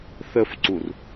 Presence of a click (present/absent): present